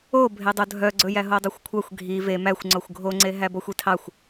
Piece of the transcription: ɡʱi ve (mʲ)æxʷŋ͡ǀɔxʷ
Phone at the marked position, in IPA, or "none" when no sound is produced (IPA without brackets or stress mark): m